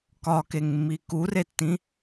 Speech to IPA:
kɒkeŋmːi kuretːĩ

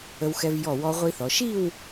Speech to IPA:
ə˧wxɛ˧vjɔ˧˩ wɔ˧ʁʷi˧θɔ˩˧ ʃi˥˧w

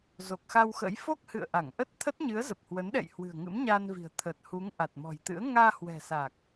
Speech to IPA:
zo˨˩k̚xa˧wxə̰˧˥j fo˦˥k̚hɨ̰˧˨ə̯ʔa˧˩ŋ ʔə˦˥t̚t̪ʰə˦˥t̚ ɲɨ˨˦ə̯zə˨˩p̚hwə˨˦nɗɛ̰˧˨j hwɨ̤˨˩ə̯ŋɨ̰˧˥mɲaː˧nvi̤˨˩ə̯ t̪ʰəː˨˩t̚hu˨˦ŋʔa˨˩t̚ mɔ̤˨˩jt̪ɨ̰˧˥ə̯ ŋaː˧hwɛ̤˨˩sa˨˩k̚

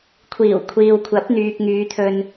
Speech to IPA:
kʷʰiː˨˩wkʷʰiː˨wkʷʰɐ˨˥p̚ n̪yː˨k̚ŋyː˨˧t̪ʰɵ˧n

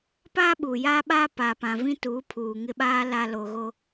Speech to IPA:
paː˦ɓuː˨jaː˦ɓaː˦ pa˨pã˨vĩ˦tuː˨˦ pʰuː˨ŋɪ˦ɓaː˦ la˦ lo˨ɣo˦

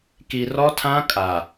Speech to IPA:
ki˨ rɔ˦tʰã˦ kʼa˨

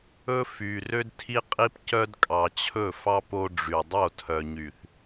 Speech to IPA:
ɵ˦ fy˨ rø˦dtʰi˦qʼi˦pcœ˦d kʼɑ˨t͡ɕʰɵ˦˨fɑ˦p o˦ɖ͡ʐy˨ dˤo˦˨tʰœ˨ɲy˨θ

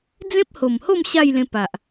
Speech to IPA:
d͡zẽ˦p̚ho˨˩mho˥˧m ɕa˥˧jlẽ˧pa˨ʔ

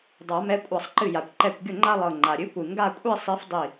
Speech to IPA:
dˤa˨˩˦mɛ˨˥kʷʼa˧˩sˤ ǃɨ˧˩ja˩kʷǃɛ˧˩kʷɡʲʊ˥˩ ŋ͡ǃa˥˧lˠɤ˧˩ ŋ͡ǃa˩ɾʲɨ˨˥kʷɨ˩ ŋɡa˥˧kʷʼi˥˧sˤi˨˥f dˤi˧˩

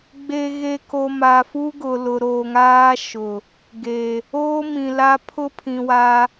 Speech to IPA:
ɡ͡be˨ɣe˨ko˨ ma˨fu˦ɡʊ˨ lʊ˨ ɾoː˨ŋaː˦ʃʊ˨ | ɡe˨ | oː˦mĩ˨la˦ pʰʊ˦pʰĩ˨wa˦

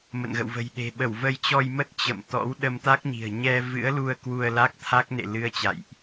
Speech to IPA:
mə̰˧˨nɣə̰˧˨wvə̤˨˩jɗe̤˨˩ ɓə˧˩wvə˧jt͡ɕɔ˧jmə˦˥t̚ t͡ɕə̰˧˨m t̪ɔ̰˧˥w ɗə˧mt̪a˦˥k̚ɲi̤˨˩ə̯ ɲɛ˧vɨ̰˧˥ə̯lu˧ə̯ kwu˧ə̯la˦˥k̚t̪ʰa˦˥k̚ nḛ˧˨lɨ˨˦ə̯ t͡ɕa̰˧˨jʔ

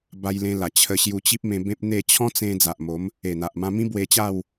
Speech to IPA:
ba˧jlẽ˧la˨˩ t͡ɕʰə˧ɕju˧t͡ɕi˦p̚ mẽ˧bẽ˦p̚n̪e˥˧ t͡ɕʰɔ̃˦t͡sẽ˧ d͡za˨ʔmo˨˦m | e˨˩n̪a˨ʔ mã˧mĩ˦bwe˧t͡ɕa˥˧w

